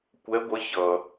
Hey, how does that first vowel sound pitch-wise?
rising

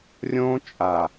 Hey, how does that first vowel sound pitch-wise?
high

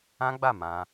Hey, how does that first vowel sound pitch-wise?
high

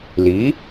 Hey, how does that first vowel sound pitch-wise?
rising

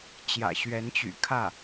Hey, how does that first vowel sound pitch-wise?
low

